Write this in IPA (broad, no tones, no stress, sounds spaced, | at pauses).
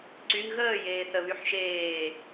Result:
ǀ y ŋ ɣ əː j eː θ ə β y ħ ʃ eː